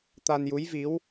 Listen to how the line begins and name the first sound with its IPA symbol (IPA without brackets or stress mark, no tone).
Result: t̪